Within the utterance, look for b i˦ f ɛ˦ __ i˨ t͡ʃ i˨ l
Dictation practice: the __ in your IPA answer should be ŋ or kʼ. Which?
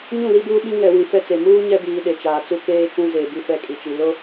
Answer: kʼ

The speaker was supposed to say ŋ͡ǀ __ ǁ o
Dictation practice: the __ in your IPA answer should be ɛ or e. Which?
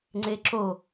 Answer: e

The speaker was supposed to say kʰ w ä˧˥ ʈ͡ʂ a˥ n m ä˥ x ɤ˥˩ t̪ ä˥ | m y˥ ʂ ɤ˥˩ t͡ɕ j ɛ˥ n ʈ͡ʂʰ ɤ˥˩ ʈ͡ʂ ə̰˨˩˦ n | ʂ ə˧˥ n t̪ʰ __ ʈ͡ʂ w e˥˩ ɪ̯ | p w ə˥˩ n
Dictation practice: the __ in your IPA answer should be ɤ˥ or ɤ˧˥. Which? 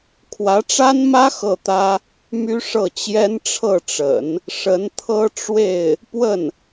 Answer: ɤ˥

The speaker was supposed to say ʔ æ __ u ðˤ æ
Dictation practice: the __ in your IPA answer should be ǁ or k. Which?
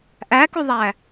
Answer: k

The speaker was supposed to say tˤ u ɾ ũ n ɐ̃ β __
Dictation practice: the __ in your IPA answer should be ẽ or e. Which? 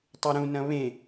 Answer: ẽ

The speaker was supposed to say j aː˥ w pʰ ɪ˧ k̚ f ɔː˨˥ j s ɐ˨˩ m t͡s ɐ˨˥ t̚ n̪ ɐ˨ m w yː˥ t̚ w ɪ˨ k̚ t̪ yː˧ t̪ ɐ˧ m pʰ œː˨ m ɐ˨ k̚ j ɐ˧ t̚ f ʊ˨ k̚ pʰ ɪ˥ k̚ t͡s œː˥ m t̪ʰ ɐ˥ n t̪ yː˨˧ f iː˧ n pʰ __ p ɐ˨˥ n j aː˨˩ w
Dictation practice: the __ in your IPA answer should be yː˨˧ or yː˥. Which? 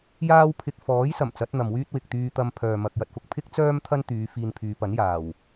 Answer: yː˨˧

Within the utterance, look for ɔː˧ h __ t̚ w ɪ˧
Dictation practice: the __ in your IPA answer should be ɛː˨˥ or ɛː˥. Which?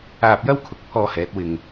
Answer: ɛː˨˥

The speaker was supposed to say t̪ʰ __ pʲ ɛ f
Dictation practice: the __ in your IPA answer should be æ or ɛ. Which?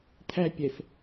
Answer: æ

